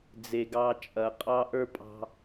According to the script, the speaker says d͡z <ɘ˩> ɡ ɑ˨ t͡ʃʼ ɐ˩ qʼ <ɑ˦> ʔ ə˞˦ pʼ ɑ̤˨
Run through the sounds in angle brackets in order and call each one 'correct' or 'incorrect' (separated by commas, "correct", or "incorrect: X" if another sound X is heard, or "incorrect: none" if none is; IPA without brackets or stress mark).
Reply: incorrect: e˩, correct